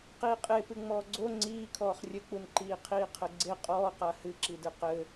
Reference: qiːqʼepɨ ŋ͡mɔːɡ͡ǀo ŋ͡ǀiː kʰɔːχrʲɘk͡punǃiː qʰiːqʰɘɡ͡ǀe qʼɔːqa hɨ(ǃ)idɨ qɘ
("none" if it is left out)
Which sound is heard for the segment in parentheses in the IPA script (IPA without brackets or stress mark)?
ǁ